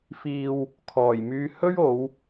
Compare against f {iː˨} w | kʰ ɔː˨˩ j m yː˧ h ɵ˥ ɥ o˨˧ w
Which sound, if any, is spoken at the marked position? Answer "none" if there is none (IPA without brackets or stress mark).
iː˨